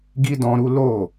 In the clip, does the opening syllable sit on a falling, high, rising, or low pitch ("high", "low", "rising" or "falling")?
high